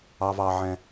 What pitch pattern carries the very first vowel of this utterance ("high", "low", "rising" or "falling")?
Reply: high